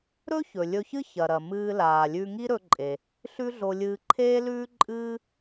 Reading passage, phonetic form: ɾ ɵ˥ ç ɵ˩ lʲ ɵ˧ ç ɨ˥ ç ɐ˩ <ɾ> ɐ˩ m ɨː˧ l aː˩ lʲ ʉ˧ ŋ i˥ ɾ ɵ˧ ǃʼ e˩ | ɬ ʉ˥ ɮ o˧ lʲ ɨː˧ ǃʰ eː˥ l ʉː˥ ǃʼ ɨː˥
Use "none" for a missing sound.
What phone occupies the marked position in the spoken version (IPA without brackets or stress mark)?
ɾ